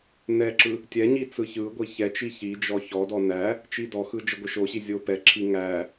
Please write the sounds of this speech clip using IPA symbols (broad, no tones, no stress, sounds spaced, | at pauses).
n ɛ ǁ ɯ | tʲ ɛ ɲ i t͡s ɯ ç ɯ ɡʷ i ç ɛ t͡ʃ i ç i d͡ʒ ɔ ç ɔ d ɔ n æ | t͡ʃ i d ɔ x ɯ d͡ʒ ə ɡʷ ə ʃ o ɕ i zʲ o p ɛ ǁʰ i ŋ æ